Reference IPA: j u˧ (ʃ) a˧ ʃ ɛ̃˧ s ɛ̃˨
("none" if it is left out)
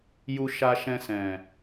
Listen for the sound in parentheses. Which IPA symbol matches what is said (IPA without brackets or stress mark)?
ʃ